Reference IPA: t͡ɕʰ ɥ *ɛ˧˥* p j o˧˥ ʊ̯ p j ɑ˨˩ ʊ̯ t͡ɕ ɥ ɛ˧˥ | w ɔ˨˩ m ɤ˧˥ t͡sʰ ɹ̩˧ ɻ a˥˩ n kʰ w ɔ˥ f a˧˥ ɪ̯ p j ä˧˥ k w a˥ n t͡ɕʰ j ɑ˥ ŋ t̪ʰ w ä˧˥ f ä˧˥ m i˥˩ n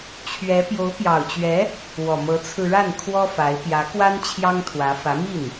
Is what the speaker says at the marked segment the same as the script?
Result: yes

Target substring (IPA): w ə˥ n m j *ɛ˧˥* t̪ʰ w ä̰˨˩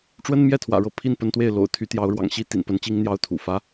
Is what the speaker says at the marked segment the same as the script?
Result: no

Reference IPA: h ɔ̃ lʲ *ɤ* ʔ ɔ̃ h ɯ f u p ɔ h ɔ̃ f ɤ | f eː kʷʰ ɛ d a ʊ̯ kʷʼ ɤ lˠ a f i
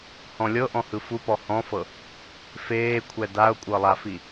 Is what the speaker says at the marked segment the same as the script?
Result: yes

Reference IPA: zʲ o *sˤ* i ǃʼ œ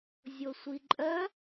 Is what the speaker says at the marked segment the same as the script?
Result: no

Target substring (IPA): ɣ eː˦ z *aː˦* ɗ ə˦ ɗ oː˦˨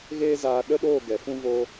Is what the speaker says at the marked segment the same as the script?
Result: no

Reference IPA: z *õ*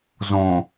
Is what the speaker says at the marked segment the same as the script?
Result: yes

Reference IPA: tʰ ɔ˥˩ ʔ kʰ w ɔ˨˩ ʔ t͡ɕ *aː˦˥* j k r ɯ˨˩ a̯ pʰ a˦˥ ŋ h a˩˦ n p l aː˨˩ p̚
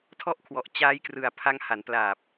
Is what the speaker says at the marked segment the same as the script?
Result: yes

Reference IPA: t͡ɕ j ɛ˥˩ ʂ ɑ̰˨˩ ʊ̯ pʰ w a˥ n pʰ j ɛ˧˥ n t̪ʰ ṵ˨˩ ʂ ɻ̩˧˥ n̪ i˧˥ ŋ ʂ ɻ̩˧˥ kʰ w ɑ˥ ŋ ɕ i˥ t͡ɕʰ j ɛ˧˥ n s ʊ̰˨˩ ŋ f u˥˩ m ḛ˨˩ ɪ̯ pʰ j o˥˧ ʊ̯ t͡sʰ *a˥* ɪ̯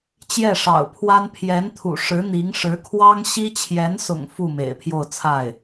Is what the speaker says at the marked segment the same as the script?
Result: no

